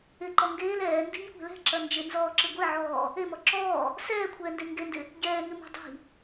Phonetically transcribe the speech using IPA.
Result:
ɪ ǃ ɔ ŋ ɡ eː l ɛː n d i̤ ɲ kʷ ɛ̤ l ɛ̤ ǁ ɐ n d͡ʒ ɪ n z ɔː ǁ ɪ ɡʷ e ʕ ɔː | e m ɔ ǁ ɔː | s ɛː kʷʰ ɛː n d e ŋ ɡ e n d ɪ | ɟ ɛː ŋ ɪ m e̤ dˤ i̤

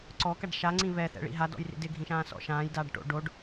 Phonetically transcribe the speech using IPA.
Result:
ǀ ɔ k a ɖ ʃ a ŋ͡ǀ ĩ β ɛ θ ɛ̰ ɭ ḭ ɦ a d ɔ̰ j r ḭ d ɪ ɡʱ ĩ ʃ ãː s ɔ̰ ʃ ãː j d aː ɖ ʈ o̰ ɖ o ɖ

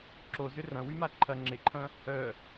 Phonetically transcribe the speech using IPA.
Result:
ǁ o z ʏ r ɐ̃ w y m a ǃʰ ɐ ŋ͡ǁ ɪ ǃʰ ɐ̃ | œ

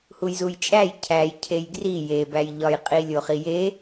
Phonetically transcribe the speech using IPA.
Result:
h u j z u j t͡ʃʼ æ j cʰ æ j cʰ e j ɡ r i j e b æ j ʎ ɒ j qʼ i lʲ o χ i j e

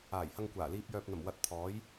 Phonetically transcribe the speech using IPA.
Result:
aː˨˩ j h ɐ˧ ŋ kʷ aː˨˩ l iː˧ p̚ j œː˨ p̚ n̪ ɐ˨˩ m w ɐ˧ t̚ t̪ʰ ɔː˨˥ j

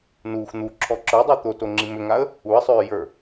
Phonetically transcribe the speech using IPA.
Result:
n uː x n̪ u ǁʰ ɔ ǁ ə˞ dˤ u t̪ o t o ŋ͡ǁ i m ʏ ŋ a ə̯ | u ə̯ sˤ ʏː j ə˞

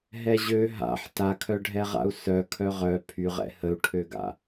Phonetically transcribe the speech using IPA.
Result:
ɦ ɛ ʑ ø ɦ a̰ ħ t a kʰ œ ɖʱ ɛ ʁ a̰ u̯ s œ kʰ œ ʁ œ pʰ y ʁ ɛ̰ h ə u̯ ʈʰ ø ɡ a̰

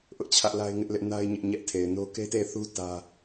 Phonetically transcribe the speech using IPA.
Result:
ʔ ʊ˦ ʔ t͡ɕʰ ä˦ ʔ l a˦ ɪ̯ ŋ ɪ˦ ʔ l ɪ˦ ʔ n a˦ ɪ̯ ɲ ɪ˦ ʔ ɲ ɛ˦ ʔ tʰ e˨ ɪ̯ n o˦ k e˦ t e˦˨ θ u˦ t ä˦

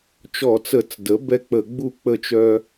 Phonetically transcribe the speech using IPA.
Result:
t͡ʃ ɔ˧˩˧ t͡s ə˧˩˧ t͡s d ə˩˥ b ɛ˦ k͡p ə˧˩˧ ɡ͡b u˥˩ k͡p ə˥˩ t͡ʃ œ˦

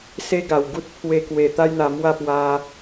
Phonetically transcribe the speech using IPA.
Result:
s e˦ ɡ a˨˩ w ɡ u˦ t̚ pʰ w e˧ k w e˨˩ t̪ a˦ j n̪ a˧ m w a˥˧ p w a˧

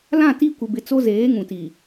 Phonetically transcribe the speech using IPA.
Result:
l ã˦˨ t i˦ kʷ ɪ˨ b ɪ˨ t͡s o˦ z eː˨˦ ŋ ũ˨ t i˨

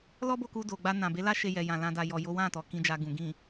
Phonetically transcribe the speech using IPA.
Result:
l ɔ˦ b o˦˨ k u˧ d o˨ ɡ͡b a˧ n ã˨ b e˨˦ l a˦ ʃ e˧ j ɛ˨ j ã˨ l ã˧ d a˨ j ɔ˨ j o˨˦ w ã˦˨ t ɔ˨ k ĩ˧ d͡ʒ a˧ ɡ ũ˨ ɡ ĩ˨

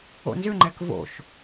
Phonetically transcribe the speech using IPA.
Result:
o̰ n z ʏ ŋ͡ǃ ɛ k v o̰ ʃ

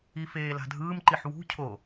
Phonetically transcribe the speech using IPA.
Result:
i f eː l a̤ dʱ ɯː m ǃ i ħ w ṳ cʰ o

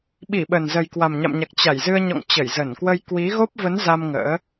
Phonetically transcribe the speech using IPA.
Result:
ɓ i˧˩ ɓ ə˨˩ n z ə˨˩ j k w a˨˩ m ɲ a̰˧˨ m ɲ a˨˩ k̚ t͡ɕ a˧˩ j z ɨ˧ ə̯ ɲ ɔ̰˧˨ ŋ t͡ɕ ə˧˩ j z ə˧˩ n k w ə˧ j k w i˨˦ ɣ o˦˥ p̚ v ə˨˦ n z a˧ m ŋ ə̰ː˧˥

